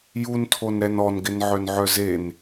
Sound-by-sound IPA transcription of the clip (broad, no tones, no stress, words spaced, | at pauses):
juntʰonɾɛn ɔnɡɪnʕœnʕœ zen